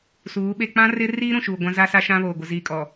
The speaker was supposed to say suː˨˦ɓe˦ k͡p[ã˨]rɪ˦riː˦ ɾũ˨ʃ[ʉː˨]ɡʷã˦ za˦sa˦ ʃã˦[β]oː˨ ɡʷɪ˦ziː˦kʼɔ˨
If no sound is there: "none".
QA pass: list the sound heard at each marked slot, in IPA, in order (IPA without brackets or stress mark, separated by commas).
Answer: ã˦, uː˨, β